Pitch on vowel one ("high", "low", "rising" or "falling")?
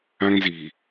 high